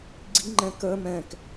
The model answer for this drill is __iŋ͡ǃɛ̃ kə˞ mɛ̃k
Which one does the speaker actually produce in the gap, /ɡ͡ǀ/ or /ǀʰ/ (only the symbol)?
ɡ͡ǀ